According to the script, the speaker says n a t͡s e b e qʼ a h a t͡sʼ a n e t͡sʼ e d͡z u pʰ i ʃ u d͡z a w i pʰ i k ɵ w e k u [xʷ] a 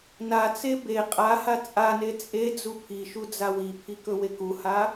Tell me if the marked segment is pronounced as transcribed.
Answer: no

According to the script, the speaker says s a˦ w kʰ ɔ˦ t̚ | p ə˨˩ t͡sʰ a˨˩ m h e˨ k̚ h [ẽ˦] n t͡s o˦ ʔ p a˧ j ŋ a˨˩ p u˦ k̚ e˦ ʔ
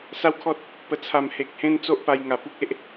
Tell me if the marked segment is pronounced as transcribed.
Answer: yes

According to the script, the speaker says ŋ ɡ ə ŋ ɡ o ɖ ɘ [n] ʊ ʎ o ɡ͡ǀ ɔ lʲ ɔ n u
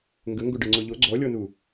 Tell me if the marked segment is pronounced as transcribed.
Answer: no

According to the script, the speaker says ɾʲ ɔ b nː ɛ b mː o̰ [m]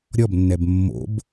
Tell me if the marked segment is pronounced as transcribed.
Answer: no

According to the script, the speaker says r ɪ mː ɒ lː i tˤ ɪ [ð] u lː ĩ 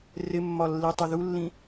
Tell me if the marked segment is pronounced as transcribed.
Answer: yes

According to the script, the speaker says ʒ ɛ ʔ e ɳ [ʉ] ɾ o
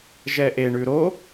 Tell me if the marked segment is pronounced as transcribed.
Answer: yes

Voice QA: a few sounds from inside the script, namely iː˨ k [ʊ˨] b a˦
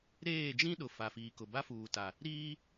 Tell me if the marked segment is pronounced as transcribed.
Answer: yes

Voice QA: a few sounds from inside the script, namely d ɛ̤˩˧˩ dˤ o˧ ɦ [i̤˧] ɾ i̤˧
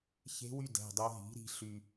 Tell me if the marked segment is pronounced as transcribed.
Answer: no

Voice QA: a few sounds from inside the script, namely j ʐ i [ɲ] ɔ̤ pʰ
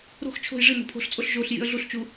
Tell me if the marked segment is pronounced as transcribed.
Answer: no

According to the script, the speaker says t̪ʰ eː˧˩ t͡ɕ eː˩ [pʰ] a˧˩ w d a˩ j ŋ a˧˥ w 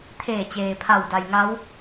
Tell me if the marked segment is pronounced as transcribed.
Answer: yes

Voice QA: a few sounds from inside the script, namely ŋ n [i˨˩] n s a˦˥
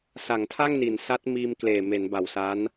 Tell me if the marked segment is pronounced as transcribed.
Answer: no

